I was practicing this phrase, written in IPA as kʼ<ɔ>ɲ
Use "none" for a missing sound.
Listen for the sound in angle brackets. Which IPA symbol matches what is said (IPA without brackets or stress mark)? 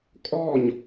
ɔ